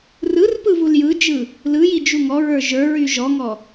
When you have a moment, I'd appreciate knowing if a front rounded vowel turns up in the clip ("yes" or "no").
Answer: yes